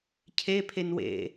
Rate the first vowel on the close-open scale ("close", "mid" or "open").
mid